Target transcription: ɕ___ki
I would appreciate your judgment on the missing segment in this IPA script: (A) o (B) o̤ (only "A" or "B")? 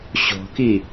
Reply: B